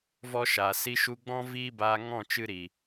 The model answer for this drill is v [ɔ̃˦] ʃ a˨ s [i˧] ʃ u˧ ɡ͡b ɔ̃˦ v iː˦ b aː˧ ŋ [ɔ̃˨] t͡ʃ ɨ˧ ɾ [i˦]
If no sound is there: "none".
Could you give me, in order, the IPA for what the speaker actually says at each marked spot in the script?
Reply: ɔ˦, i˧, ɔ̃˦˨, i˨

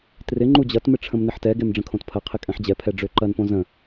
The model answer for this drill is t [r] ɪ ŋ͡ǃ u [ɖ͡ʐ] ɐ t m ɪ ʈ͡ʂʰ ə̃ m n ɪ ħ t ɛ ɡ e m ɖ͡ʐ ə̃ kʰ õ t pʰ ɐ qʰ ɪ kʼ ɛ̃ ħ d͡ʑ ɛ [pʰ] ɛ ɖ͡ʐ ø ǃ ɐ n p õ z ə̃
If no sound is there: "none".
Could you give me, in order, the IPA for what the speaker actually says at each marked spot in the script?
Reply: r, d͡ʑ, pʰ

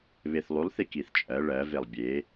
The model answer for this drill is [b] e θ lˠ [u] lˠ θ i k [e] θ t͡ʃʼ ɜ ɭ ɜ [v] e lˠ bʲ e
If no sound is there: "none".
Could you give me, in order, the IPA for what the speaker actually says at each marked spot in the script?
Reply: β, u, i, v

